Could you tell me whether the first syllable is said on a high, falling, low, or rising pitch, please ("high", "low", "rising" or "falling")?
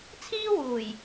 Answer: high